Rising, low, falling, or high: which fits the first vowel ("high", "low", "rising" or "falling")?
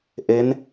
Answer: rising